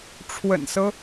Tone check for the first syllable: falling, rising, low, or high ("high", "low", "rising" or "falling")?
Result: low